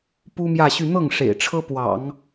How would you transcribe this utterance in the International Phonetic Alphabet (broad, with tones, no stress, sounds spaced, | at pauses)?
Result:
p u˥ m j ä˥˧ ɕ y˥˧ n̪ ɤ˥˩ ŋ ʂ ḛ˨˩ ɪ̯ ʈ͡ʂʰ ɤ˥ p w ɑ̰˨˩˦ ŋ